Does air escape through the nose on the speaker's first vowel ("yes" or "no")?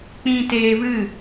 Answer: yes